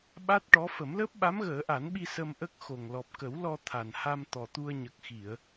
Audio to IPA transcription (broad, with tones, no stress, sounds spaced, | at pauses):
ɓ a˦˥ t̚ ʈ ɔ˧˥ f ə˨˩˦ m l əː˦˥ p̚ ɓ a˧˥ m ɣ əː˨˩˦ ʔ a˨˩˦ n ɓ i˧ s ə˧ m ʔ ə˦˥ k̚ x o˨˩ ŋ l ɔ˨˩ p̚ k ə˨˩˦ w l ɔ˧ t̪ʰ a˨˩ n h a˧ m t̪ ɔ˨˩ t̪ u˧ ə̯ ɲ ə˨˩ k̚ x i˨˩˨ ə̯